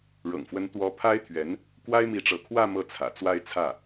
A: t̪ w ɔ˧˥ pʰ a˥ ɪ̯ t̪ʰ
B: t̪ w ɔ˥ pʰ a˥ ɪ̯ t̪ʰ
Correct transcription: B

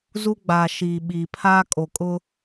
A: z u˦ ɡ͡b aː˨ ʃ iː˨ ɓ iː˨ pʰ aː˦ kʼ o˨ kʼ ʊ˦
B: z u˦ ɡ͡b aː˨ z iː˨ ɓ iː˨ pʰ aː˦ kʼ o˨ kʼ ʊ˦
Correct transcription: A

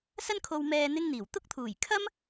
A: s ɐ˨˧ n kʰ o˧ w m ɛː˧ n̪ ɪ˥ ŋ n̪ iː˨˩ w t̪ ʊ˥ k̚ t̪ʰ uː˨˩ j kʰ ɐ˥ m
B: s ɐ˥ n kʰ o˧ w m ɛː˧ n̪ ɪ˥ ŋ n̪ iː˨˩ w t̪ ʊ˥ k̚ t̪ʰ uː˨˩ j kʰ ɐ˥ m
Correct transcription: B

